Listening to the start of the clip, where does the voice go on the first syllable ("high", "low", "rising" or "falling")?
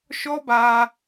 high